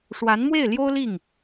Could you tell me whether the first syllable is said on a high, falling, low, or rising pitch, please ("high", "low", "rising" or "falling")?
rising